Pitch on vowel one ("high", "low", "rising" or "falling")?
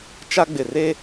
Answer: high